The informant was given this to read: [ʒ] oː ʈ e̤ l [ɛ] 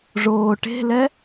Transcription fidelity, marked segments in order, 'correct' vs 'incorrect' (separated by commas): incorrect, correct